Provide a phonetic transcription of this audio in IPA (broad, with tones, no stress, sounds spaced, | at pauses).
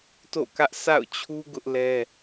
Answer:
t o̰˦˨ k ä˦ ʔ sʰ a̰˦˨ ʊ̯ t͡ɕʰ u˦ ɡ ʊ˦ ʔ l ɛ˦